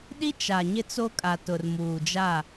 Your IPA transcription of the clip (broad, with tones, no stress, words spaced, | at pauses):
ɗi˦t͡ʃa˨ ɲɪ˦t͡so˦kʼa˨ tʊ˨rmuː˨d͡ʒa˦˨